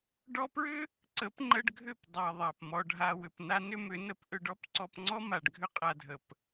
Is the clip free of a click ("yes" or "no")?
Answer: no